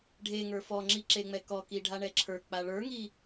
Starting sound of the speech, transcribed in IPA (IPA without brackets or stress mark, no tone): ɖʱ